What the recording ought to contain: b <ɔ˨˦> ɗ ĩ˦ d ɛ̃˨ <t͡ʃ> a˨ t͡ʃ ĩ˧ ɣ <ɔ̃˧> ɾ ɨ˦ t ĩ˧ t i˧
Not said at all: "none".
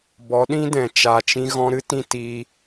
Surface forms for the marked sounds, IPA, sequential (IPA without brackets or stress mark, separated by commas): ɔ˨˦, t͡ʃ, ɔ̃˧